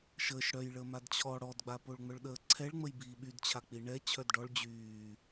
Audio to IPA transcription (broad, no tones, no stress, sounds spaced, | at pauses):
ʃ əː ʃ ɽ œ j ɭ əː m a d t͡ɕʰ ɔ ɽ ɔ d ɡ͡b a p o ɭ ŋ͡m œ ɭ ɗ əː ǀʰ ɛ ɭ ŋ͡m ə j b iː ɓ y d t͡ɕʰ a k͡p i ɳ ɛ t͡ɕʰ œ d ɖ ɔ ɭ d͡ʑ yː